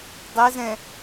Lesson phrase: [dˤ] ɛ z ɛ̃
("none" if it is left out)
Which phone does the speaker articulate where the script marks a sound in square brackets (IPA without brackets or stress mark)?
dˤ